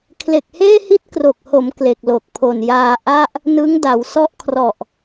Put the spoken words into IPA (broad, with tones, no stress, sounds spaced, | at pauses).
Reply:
kʰ l e˨˩ k̚ h eː˥˩ h i˥˩ t̚ k r o˨˩ k̚ h o˩˦ m k l e˨˩ k̚ l o˨˩ k̚ pʰ o˨˩ n j aː˧ ʔ a˥˩ ʔ | n ɯ˦˥ ŋ d a˩˦ w s ɔ˥˩ ʔ kʰ r ɔ˨˩ ʔ